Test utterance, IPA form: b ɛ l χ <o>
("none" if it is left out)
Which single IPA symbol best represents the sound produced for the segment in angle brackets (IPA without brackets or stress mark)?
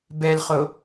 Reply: o